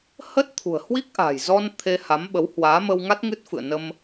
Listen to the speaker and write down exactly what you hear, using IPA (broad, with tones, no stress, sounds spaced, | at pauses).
h ə˦˥ t̚ t̪ʰ ṳ˨˩ ə̯ h w i˦˥ k̚ ʔ a̤˨˩ j z ɔ˧ n t̪ʰ e˧ h a˨˦ m ɓ ə˨˦ w h w aː˨˦ m ə˧ w ŋ a˦˥ t̚ ŋ ɨ˦˥ t̚ f ɨ̰˧˨ ə̯ n ə˧ m